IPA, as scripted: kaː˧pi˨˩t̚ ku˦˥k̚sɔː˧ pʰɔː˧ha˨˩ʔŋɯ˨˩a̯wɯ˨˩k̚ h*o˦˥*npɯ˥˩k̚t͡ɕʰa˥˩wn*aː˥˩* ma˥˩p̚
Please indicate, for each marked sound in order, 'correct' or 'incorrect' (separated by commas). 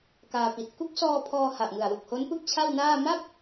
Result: correct, correct